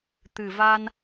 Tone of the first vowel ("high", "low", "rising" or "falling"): low